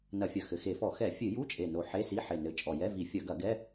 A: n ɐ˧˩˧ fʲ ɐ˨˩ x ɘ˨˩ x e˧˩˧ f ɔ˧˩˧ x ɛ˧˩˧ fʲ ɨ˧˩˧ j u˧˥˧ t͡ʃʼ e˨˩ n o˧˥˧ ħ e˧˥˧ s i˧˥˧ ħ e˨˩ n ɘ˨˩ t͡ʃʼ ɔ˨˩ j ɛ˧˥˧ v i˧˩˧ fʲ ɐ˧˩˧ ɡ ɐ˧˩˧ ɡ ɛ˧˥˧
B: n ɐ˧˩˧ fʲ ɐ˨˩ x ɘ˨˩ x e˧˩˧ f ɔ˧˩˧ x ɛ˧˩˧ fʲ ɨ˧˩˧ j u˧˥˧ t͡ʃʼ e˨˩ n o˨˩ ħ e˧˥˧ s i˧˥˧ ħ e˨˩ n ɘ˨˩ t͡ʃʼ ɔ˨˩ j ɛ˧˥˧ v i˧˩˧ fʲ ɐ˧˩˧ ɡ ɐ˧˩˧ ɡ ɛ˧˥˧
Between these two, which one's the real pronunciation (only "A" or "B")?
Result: B